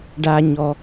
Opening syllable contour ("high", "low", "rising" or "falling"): high